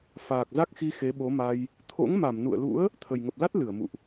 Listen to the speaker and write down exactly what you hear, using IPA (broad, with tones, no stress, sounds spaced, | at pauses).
f aː˨˩ k̚ z a˦˥ k̚ x i˧ x e˨˦ ɓ o˨˦ m a˧ j | t̪ʰ o̰˧˥ ŋ m a˧˩ m n ṵ˧˨ ə̯ l ṵ˧˥ ə̯ | t̪ʰ ə˨˩ j ŋ ə˨˩ p̚ l a˦˥ t̚ l ɨ˧˩ ə̯ m ṵ˧˨ ʔ